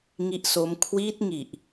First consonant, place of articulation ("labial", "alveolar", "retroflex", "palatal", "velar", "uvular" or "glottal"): velar